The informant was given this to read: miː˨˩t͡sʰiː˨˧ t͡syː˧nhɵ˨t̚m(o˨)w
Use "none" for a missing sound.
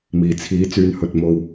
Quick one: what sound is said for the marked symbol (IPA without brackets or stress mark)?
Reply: o˧